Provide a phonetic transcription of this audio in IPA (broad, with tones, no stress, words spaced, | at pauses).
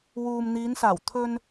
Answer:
wuː˨mn̪iː˨˧nsaː˨˩w t̪ʰɵ˧n